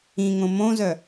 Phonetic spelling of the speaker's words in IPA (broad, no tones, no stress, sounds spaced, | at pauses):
ĩ ŋ õ m õ z œ